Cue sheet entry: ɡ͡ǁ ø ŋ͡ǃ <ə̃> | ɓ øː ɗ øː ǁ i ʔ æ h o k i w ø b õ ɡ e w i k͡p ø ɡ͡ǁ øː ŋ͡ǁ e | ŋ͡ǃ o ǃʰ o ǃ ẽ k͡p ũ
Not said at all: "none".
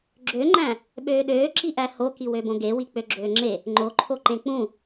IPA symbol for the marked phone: æ̃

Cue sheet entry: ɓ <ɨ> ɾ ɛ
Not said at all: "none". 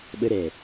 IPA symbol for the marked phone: ə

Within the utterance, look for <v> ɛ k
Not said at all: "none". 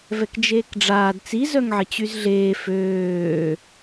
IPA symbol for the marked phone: v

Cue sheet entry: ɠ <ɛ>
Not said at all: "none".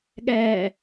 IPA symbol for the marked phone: ɛː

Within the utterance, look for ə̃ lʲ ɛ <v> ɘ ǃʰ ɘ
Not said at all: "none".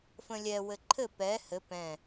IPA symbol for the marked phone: w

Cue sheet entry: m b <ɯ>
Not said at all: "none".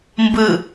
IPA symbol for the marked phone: ɯ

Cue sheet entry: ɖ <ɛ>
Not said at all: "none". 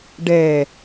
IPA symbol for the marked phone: ɛ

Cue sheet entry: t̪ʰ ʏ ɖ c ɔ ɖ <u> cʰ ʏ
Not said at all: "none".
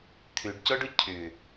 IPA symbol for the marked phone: ʊ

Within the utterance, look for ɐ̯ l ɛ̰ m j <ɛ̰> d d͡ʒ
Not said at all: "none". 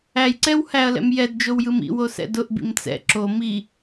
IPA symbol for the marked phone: ɛ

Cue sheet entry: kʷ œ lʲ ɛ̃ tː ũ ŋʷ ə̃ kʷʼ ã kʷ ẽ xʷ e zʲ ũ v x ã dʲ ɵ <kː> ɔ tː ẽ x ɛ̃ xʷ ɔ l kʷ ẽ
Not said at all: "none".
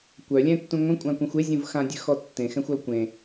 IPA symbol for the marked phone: x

